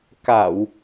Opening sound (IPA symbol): k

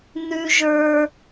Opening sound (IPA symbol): n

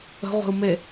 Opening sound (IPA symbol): ə̤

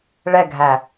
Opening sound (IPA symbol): ɭ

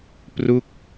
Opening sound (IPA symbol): p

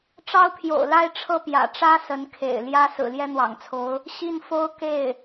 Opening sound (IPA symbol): ʈ͡ʂ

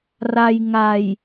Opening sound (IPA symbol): r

